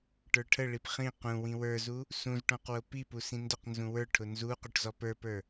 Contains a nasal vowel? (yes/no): yes